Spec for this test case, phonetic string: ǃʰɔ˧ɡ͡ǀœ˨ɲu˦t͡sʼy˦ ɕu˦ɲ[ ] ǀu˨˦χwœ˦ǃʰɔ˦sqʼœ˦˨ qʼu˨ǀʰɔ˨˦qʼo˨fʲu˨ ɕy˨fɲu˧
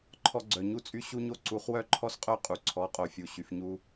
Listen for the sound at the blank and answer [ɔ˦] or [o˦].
o˦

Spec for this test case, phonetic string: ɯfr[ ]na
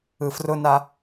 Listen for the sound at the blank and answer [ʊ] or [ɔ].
ʊ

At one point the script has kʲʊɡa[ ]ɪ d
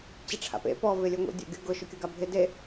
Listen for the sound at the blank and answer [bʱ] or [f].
bʱ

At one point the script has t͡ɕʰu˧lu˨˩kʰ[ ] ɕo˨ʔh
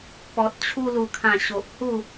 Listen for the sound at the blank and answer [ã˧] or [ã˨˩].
ã˨˩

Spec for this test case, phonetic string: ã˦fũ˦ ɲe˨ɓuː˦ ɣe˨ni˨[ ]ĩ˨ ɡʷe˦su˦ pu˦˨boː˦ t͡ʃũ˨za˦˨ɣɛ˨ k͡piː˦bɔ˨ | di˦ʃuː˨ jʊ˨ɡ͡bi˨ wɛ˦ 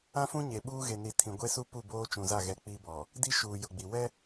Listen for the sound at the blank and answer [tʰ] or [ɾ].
tʰ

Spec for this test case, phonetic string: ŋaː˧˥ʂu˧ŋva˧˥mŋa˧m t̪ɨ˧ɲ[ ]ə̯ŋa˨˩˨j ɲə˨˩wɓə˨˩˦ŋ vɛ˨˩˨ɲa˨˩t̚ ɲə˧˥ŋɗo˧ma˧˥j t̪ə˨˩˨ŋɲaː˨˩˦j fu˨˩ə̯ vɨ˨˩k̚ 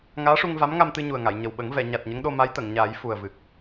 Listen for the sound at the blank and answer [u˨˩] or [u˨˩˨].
u˨˩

